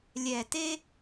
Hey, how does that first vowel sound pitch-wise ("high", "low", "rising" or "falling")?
low